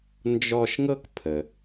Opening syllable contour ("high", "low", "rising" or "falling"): high